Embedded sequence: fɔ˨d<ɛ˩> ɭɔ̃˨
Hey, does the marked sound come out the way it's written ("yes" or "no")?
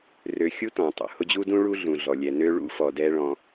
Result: no